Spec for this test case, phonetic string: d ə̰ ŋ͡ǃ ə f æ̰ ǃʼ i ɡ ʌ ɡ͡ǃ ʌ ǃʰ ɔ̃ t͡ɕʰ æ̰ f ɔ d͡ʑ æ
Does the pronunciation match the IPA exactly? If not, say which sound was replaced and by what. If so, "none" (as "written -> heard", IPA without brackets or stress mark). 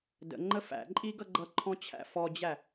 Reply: none